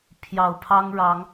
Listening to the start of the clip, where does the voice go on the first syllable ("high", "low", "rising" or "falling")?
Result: low